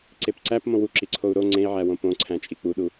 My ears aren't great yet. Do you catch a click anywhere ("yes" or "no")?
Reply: yes